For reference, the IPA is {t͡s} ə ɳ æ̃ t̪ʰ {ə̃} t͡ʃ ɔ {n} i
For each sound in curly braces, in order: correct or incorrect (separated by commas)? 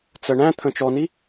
correct, correct, correct